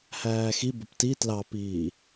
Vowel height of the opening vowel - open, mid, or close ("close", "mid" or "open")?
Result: open